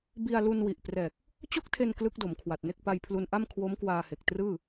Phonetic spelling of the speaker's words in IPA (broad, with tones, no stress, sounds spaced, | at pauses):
b i˧ a̯ l u˧ n w i˨˩ ʔ p r ɛː˨˩ k̚ | t͡ɕ o˥˩ k̚ tʰ e˧ n k l ɯ˦˥ k̚ d o˩˦ m kʰ w a˨˩ t̚ n e˥˩ k̚ p a˧ j pʰ l u˧ n ʔ a˥˩ m kʰ w o˦˥ m k w aː˧ h e˨˩ k̚ t r ɯː˥˩